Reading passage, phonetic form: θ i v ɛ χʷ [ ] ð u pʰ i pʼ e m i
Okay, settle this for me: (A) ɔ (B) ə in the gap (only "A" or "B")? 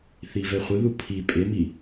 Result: B